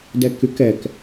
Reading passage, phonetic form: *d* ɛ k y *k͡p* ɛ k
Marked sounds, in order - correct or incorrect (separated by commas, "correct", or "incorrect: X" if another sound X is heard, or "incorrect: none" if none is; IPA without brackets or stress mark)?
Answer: correct, incorrect: k